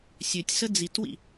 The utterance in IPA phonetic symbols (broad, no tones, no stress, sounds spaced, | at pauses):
sʲ ø tʲ s ə d͡z i t w ḭ